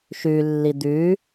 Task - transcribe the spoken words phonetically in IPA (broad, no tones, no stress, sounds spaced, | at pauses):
ʃ ʉ lː i d̪ ʉ